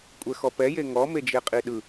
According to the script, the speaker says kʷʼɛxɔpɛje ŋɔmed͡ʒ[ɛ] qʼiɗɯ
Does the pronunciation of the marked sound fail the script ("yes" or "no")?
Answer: yes